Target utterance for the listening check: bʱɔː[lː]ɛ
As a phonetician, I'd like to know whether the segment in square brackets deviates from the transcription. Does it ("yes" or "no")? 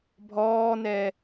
yes